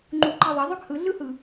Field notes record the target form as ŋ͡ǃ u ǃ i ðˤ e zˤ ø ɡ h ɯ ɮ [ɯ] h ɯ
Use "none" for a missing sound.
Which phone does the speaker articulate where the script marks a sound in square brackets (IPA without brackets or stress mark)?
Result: ɯ